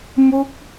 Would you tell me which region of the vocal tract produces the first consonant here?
lips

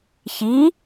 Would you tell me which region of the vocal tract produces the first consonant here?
palate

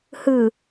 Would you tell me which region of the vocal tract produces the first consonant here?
throat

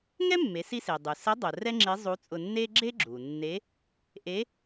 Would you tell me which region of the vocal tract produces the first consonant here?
velum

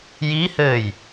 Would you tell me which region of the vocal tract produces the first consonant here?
palate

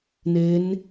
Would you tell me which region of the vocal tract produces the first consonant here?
tongue tip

